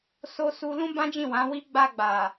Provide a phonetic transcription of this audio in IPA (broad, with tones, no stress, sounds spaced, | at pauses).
s o˧ s u˧ l ũ˦ b ã˦ d͡ʒ ĩ˦˨ w ã˨˦ w i˦ ɡ͡b a˧ ɡ͡b a˨